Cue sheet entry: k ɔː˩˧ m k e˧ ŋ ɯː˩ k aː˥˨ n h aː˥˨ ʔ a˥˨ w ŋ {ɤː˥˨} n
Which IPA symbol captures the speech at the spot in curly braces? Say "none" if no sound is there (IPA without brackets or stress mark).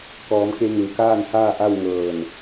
ɤː˧˩